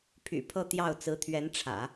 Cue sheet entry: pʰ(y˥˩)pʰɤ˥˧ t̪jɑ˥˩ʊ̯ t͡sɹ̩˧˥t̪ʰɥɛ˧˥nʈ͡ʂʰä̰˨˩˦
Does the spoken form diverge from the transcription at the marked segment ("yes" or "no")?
yes